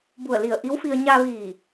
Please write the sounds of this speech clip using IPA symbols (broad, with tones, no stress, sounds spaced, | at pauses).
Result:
b u˧˩ ə̯ l i˧˩ ə̯ ʔ i˧˥ w f i˧ ə̯ ɲ a˧ ʋ iː˧˩